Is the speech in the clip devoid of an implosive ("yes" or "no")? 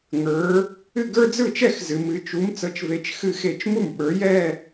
no